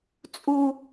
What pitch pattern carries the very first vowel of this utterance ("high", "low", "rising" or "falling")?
high